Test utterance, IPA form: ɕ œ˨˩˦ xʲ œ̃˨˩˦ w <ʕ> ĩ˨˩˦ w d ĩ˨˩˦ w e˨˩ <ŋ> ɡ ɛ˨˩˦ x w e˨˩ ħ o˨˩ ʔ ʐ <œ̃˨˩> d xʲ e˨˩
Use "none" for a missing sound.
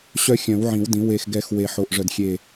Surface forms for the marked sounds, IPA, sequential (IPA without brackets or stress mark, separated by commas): ʕ, x, œ˨˩